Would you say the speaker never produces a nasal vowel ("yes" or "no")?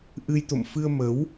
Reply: yes